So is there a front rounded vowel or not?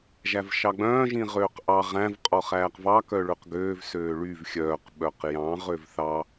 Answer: yes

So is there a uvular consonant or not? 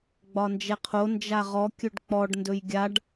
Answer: yes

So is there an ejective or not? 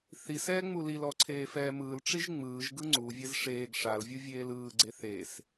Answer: no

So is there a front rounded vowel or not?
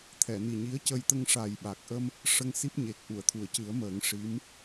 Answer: no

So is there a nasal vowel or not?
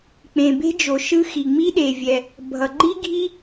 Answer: yes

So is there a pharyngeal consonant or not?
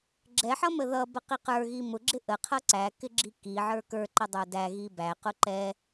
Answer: yes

